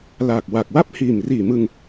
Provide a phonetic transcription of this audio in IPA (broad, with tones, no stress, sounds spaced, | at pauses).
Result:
l aː˨˩ k̚ w a˨˩ k̚ w a˥˩ p̚ h iː˨˩ m r iː˨˩ m ɯ˧ ŋ